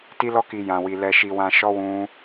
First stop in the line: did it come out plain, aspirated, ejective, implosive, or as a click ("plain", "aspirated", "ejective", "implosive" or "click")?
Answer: plain